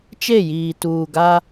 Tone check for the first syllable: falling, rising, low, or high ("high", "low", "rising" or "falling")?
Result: falling